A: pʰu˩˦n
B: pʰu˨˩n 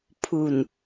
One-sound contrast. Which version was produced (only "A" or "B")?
B